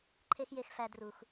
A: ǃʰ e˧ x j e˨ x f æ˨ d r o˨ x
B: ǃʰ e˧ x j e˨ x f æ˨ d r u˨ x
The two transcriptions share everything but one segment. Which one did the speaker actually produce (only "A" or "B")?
B